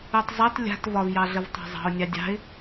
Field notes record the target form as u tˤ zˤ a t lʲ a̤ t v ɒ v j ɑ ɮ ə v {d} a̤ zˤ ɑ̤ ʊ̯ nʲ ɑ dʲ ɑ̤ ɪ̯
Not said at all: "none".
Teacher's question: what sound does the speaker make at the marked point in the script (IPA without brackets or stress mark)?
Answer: tˤ